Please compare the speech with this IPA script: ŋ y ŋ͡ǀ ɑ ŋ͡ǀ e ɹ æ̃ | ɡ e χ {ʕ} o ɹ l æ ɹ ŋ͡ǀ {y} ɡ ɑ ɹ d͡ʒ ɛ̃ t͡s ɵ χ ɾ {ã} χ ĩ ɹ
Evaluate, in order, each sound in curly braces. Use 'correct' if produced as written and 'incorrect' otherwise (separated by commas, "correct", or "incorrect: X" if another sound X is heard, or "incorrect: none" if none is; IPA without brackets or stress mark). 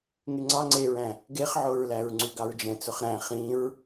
correct, correct, incorrect: æ̃